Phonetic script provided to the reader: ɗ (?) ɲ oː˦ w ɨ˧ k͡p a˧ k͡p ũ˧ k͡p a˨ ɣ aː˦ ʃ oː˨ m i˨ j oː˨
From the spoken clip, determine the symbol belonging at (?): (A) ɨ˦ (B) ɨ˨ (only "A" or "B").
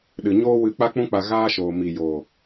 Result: B